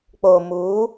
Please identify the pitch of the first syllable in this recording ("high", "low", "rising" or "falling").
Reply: low